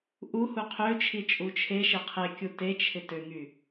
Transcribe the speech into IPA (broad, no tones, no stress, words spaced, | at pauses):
ʔu huqʰøt͡ʃʰi t͡ʃʼut͡ʃʰeʃe qʰekʲu tet͡ʃʰɪ tøŋy